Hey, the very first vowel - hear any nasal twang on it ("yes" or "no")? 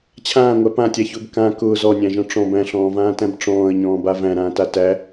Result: yes